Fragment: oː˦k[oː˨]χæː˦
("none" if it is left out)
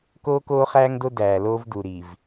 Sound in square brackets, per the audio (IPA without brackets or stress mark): oː˦